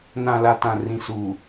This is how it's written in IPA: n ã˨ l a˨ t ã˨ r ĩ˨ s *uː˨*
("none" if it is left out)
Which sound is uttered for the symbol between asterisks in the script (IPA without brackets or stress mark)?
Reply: uː˨